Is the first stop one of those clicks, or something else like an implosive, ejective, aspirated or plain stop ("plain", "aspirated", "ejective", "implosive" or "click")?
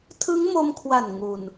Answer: aspirated